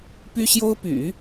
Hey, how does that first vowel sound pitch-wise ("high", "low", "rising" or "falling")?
high